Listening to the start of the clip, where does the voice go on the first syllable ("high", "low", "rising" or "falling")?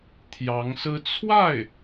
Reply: rising